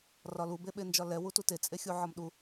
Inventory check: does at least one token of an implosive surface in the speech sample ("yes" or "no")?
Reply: yes